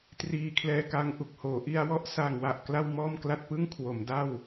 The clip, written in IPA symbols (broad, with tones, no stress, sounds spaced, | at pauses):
t r iː˧ kʰ l ɛː˧ k a˧ ŋ ʔ u˨˩ k̚ h oː˩˦ ʔ i˧ a̯ w ɔ˥˩ ʔ s a˨˩ ŋ w a˨˩ ʔ k l a˥˩ w m ɔː˥˩ m k l a˥˩ t̚ p ɯ˥˩ ŋ kʰ w o˩˦ m d a˥˩ w